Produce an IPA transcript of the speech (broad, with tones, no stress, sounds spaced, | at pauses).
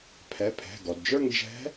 pʰ ɛ˩˧˩ pʰ ɛ̤˩˧˩ ɡ ɔ˩ d d͡ʒ ə˞˥˧ ŋ d͡ʒ ɛ̤˧˥